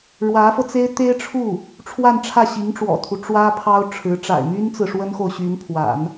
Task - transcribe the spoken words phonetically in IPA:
ɻ w ä˧˥ f ɤ˧ t͡s e˥ ɪ̯ t̪ e˥ ɪ̯ ʈ͡ʂʰ u˥˩ | ʈ͡ʂʰ w a˥˧ n ʈ͡ʂʰ ä˥˩ ɕ i˧˥ ŋ ʈ͡ʂ w ɔ̰˨˩ t̪ʰ u˦ ʈ͡ʂ w ä˥ pʰ ɑ˥ ʊ̯ ʈ͡ʂʰ ɻ̩˧˥ ʈ͡ʂ a̰˨˩ ɪ̯ m y˥ n t͡s ɹ̩˨ ʂ w ə˥ n x o˨ ʊ̯ ɕ y˧˥ n pʰ w a̰˨˩˦ n

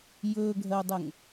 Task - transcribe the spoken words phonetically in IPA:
j ɵː ɡʱ ɜ o̯ dˤ ə ŋ

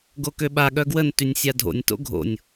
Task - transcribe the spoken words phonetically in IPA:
ɡ o k ø ɓ a ɠ œ ɡ w ə n t y nʲ sʲ a dʱ o̰ nʲ t o̰ ɡʱ o̰ nʲ

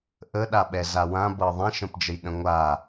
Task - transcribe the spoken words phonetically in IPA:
ʔ ə ɗ a ɓ ɛ z a w ã b ɤ ðˤ ɛ̃ ʃ ə̃ p d͡ʒ ə j ɗ ə̃ ŋʷ a

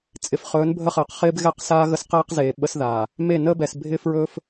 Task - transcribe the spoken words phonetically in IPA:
t͡sʼ ɪ˨ f χ ɵː˨˦ n bʱ ə˦ χ əː˨ q χ ɪː˦ b ɣ ɛ˦ q s aː˦ ɣ ə˦ s q eː˦ q z eː˨ ɓ ə˦ s ð aː˨ | m e˦˨ n əː˦ b ɛ˨ s bʱ ɪː˦ f ɹ ɵː˦ f

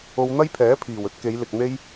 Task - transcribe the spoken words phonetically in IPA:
o˧ w n̪ ɐ˥ j pʰ ɛː˨˥ pʰ iː˨˩ w ɵ˥ t̚ k e˨˧ j l ɪ˨ k̚ n̪ e˥ j

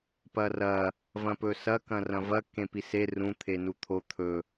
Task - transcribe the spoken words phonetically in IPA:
p ɐ r ɐ | v ɐ̃ p ɵ s ɐ k ɐ̃ r ɐ̃ v ɐ k ẽ p i s e r ũ t̪ʰ e n u t̪ʰ o t̪ʰ ɵ

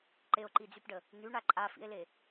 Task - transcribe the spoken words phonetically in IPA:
ǃ e o̯ ǃ i d͡z y p ɖ ə | n̪ y ɳ a ǃʼ a f ḭ e̯ l e

